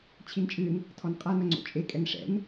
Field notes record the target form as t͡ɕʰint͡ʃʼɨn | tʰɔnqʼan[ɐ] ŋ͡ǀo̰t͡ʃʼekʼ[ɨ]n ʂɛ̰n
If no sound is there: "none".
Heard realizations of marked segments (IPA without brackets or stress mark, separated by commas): ɐ, ɛ